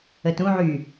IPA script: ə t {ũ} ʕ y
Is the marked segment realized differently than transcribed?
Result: no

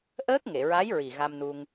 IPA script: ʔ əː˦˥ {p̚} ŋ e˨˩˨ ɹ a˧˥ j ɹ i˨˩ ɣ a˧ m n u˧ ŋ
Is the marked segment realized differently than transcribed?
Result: yes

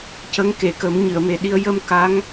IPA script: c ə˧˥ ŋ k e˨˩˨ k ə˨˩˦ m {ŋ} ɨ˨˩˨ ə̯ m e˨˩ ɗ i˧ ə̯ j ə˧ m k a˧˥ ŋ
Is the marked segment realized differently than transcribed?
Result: yes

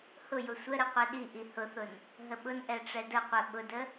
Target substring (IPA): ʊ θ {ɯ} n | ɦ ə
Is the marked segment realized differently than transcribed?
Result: yes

